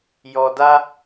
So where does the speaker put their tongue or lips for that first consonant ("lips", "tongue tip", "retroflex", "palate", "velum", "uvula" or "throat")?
palate